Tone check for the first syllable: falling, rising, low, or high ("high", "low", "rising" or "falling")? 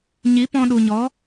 rising